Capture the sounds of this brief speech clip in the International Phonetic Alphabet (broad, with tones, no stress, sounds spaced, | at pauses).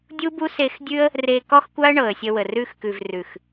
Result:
dʲ u˦ b u˦ s e˧ x dʲ ʉ˦ ə̯ | r e˧ k ɔ˦ x kʷ a˦ ə̯ ɳ ɤ˨ ə̯ sʲ ə˧ w ə˨ r ʉ˧ x k ʉ˨ v r ʉ˨ x